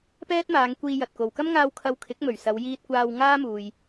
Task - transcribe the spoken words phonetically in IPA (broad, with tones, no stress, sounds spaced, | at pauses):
p ɛː˥ t̚ m aː˨˧ ŋ kʷ iː˧ j ɐ˨ t̚ k o˨ w k ɐ˥ m ŋ aː˧ w kʰ ɐ˧ w kʰ ɪ˨˥ k̚ m ɵ˨˩ ɥ s ɐ˨˧ w j iː˧ t̚ kʷ aː˧ w ŋ aː˥ m uː˨ j